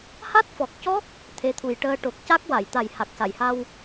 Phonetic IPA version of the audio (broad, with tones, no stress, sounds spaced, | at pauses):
h a˦˥ t̚ f ɔ˨˩ k̚ c ɔ˦˥ k̚ | t̪ʰ e˧˥ t̪ʰ u˨˩ j ʈ əː˧ ʈ o˨˩ k̚ c a˦˥ k̚ w a˨˩˨ j t̪ a˨˩ j h a˨˩ k̚ s a˨˩˨ j h a˧ w